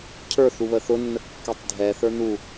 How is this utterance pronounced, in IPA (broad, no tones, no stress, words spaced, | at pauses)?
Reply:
cʰə˞θu βəθʊnːə kːɛtˤdʱɛθə˞ nu